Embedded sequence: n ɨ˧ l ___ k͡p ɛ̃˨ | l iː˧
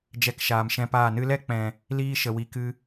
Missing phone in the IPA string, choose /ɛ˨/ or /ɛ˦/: ɛ˦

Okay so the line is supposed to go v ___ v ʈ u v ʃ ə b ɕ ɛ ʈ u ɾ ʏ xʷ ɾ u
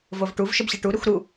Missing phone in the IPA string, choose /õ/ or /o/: o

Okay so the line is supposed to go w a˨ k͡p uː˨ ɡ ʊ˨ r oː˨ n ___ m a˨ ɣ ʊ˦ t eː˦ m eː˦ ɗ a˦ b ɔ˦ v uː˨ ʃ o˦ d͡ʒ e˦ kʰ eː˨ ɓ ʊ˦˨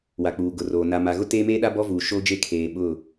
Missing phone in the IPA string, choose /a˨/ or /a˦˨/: a˨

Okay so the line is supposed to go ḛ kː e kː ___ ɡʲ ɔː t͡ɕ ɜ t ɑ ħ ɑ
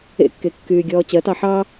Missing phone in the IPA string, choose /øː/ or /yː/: yː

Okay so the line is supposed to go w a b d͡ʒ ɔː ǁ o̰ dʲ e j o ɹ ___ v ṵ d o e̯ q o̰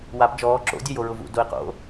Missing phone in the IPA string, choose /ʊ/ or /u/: ʊ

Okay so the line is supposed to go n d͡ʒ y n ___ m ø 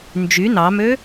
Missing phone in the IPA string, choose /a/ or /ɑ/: ɑ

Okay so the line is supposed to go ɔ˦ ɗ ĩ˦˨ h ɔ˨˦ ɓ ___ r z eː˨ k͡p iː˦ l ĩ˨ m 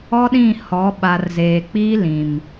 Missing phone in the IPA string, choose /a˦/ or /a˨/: a˨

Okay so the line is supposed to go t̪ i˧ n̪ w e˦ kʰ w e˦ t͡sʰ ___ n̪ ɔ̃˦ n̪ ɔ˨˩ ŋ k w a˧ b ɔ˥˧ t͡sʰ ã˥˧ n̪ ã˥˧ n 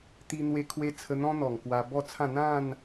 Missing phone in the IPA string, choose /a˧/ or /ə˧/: ə˧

